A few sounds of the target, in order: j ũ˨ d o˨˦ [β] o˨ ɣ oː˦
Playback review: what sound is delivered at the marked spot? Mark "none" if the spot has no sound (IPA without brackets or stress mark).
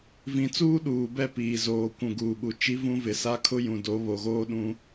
β